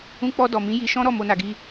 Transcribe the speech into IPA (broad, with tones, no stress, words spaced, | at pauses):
ũ˧k͡pɔ˧ dɔ˨mĩ˨˦ ji˧ʃɔ̃˦ɾɔ˦˨ mo˧na˨ɡi˧